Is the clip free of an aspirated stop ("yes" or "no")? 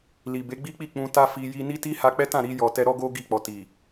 yes